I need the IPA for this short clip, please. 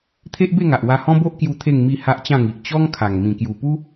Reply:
t̪ʰ e˦ ʔ b e˥˧ ŋ a˨ ʔ w a˧ h ɔ̃˦ b o˦ ʔ k j u˧ t̪ʰ e˥˧ ŋ m i˥˧ h a˦ ʔ t͡ɕ ã˥˧ ŋ i˨ ʔ t͡ɕ ɔ˦ ŋ kʰ a˨˩ ŋ m ĩ˨˩ k j u˨˩ p u˦

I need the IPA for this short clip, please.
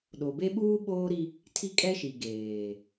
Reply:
ɗ o˨ b e˦ ɓ uː˦ ɓ oː˦ ɾ i˦ | tʰ i˦ kʼ ɛ˦ ʃ i˨ ɡ eː˨

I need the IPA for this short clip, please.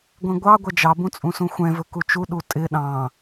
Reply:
ɡʷ ẽ ɡʷ ɑ ɡʷ ɛ d͡ʒ ɑ b ũ t͡sʼ ũ s ũ xʷ ɛ̃ v ɵ k u t͡ʃ u ɗ u tʼ ɪ ɗ ɑ̃

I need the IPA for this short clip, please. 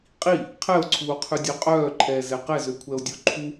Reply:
qʼ i | qʰ ɛ o̯ ǀʰ uː qʰ ʉ dʲ ø qʼ œː ǃʰ ɛː z ɛ q ɛ z ø kʷʰ ɛ o̯ dʲ u ǃʰ u

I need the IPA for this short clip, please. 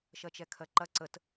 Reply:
ʃ ɜ t͡ʃ ɛ kʰ ɜ ǃ ɐ ǀ ə t

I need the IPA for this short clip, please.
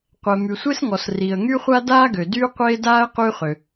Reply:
qʷ ɛ˩ m y˩ sʷ e˥ s ŋ ɔ˩ s r i˩ ə̯ ŋ y˥ χʷ a˥ d aː˥ ɡ ø˩ d yː˥ qʷ eː˥ d aː˥ ə̯ q yː˥ χ ø˩

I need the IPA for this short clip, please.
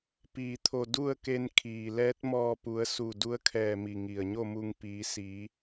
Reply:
p iː˩ t̪ʰ o˧˩ d u˥˨ ə̯ k e˧ n kʰ iː˩ l ɛː˧˥ t̚ m ɔː˧ p u˩˧ ə̯ s u˧˩ d u˧˥ ə̯ kʰ ɛː˧˩ m i˩ ŋ i˩ ə̯ ɲ o˥˨ m u˧ ŋ p iː˩˧ s iː˩˧

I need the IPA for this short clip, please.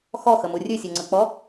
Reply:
x ɔ x ə m u rʲ ʉ sʲ u ŋ͡ǀ ə k͡p ɔ

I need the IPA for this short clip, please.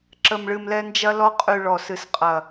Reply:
ǁ ə˨˩ m ɭ ɨ˨˩ m l ɛ˧ n d͡ʒ ɐ˧ l ɔ˧ qʼ y˨˩ ɭ ɔ˨˩ s ɨ˨˩ s qʼ ɐ˨˩

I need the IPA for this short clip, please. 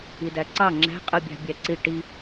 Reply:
i d æ ǀ ɑ ŋ͡ǁ æ̤ qʼ ɯ bʲ ɑ̤ bʲ æ ǀ i ʈ i

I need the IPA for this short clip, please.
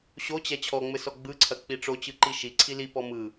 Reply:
ɕ o t͡ɕ ɛ t͡ɕʰ ɔ ŋ͡m ɘ s ɔ ɡ͡b ɯ ǀʰ ɐ k͡p i ʈ͡ʂ o t͡ɕ ɯ ǃ i ʃ i ǀʰ i l i p ɔ m ɯ

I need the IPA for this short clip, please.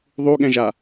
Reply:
ðˤ u ɠ ɛ̃ ʒ a

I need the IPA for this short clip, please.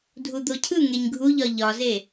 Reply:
dʱ u d̪ o cʰ ɯ ŋ e ɲ ɡʱ u ʎ ɒ ʎ ɒ z e

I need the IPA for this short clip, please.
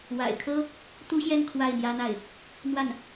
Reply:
w a̰˨˩ ɪ̯ kʰ ɤ˥ | t̪ u˥ ɕ j ɛ˥˧ n kʰ w a˥˩ ɪ̯ n̪ j ä˥ n̪ a˥˩ ɪ̯ | n̪ w a˥˩ n

